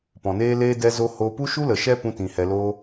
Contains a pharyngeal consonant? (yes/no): no